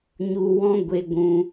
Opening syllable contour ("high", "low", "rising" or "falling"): low